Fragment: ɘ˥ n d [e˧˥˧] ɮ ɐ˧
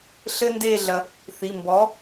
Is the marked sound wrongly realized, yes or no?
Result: yes